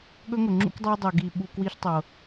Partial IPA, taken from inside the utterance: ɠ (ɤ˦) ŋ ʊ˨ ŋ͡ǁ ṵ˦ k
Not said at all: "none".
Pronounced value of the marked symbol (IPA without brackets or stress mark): ɵ˦